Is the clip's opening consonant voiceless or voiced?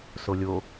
voiceless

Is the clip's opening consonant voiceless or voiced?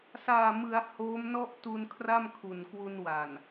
voiceless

